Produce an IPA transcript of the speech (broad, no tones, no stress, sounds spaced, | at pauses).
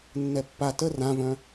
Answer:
nː ɛ pː a t ə r ã v œ̃